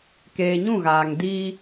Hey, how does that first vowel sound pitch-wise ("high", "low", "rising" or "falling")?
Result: low